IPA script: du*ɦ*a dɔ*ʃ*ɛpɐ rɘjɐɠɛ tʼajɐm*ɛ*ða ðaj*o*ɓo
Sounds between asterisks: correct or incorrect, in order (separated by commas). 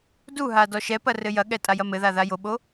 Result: correct, correct, incorrect, correct